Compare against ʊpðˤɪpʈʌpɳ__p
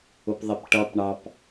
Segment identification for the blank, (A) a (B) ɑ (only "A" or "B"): B